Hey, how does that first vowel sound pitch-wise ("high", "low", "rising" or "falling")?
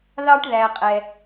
high